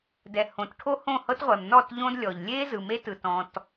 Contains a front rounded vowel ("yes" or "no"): no